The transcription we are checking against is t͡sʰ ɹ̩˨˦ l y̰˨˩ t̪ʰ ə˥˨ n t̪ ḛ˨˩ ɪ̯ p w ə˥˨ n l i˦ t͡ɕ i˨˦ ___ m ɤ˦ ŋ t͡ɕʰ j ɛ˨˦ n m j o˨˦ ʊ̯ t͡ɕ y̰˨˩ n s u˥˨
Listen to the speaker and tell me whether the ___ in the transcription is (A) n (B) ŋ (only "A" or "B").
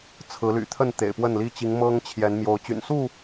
B